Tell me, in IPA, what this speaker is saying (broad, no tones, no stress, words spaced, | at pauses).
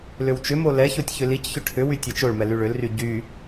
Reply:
lʏwt͡ʃʏmo lɛçotʲ çʏlicçʏ ʈʰʏwy tʲɛt͡ʃoɭmɛ lyɭʏlry ɟy